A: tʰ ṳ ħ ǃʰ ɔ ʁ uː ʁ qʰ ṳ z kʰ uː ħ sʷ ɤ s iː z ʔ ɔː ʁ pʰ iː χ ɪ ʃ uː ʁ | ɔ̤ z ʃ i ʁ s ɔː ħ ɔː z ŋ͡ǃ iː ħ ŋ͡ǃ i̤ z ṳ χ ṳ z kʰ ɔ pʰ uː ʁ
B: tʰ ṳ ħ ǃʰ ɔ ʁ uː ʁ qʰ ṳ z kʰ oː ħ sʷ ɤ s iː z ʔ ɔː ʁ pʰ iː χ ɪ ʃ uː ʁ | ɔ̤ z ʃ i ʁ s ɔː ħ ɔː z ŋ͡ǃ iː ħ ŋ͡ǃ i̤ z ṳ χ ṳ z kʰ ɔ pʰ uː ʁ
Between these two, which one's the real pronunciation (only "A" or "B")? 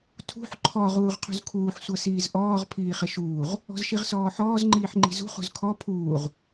A